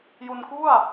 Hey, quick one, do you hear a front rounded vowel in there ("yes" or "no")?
no